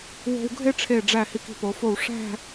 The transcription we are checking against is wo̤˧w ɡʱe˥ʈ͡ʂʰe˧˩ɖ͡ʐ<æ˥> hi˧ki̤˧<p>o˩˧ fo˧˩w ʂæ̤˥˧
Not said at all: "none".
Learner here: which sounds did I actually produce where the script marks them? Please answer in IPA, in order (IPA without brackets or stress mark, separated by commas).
æ˧˩, p